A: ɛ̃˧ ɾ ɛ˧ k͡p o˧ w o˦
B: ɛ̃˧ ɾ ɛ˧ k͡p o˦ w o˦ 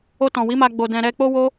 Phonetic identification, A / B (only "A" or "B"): B